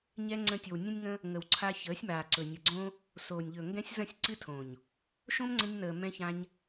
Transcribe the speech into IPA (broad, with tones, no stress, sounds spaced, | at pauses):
ɲ ɛ˦ ŋ͡ǀ ə̃˦ tʲ o˨ w nʲ ə̃˦ nʲ ŋ ə̃˦ | ŋ ə˨ w ǀʰ a˧ ç əː˨˦ sʲ m aː˨ ǀ ɵ˨ nʲ ə˨ ɡ͡ǀ õ˦ | s oː˨ nʲ ʎ ɵ˨ ŋ ɡ ɛ̃˧ sʲ z ə̃˦˨ sʲ ǀ ɨ˦ tʰ õ˨ ɲ | ʃ õ˦ m ŋ͡ǀ ə̃˧ ɲ n əː˨ m ɛ̃˧ ç ã˧ ɲ